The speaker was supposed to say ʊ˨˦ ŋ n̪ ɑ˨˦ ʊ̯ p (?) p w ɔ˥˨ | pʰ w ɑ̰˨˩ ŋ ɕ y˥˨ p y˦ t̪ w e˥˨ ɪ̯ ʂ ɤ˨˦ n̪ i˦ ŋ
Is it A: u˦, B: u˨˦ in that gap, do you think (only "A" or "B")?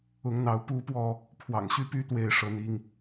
A